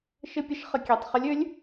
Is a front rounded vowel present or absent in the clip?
present